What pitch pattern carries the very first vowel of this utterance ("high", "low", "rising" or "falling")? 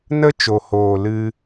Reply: high